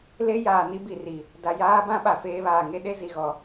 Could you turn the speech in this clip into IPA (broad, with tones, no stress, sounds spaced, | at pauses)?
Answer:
l e˦ j aː˨ n i˦ b i˨ r i˨ | d a˨ j aː˦ b ã˦ ɓ a˨ f eː˦ β aː˨ ŋ e˦ ɗ e˦ z i˨ ɣ ɔ˨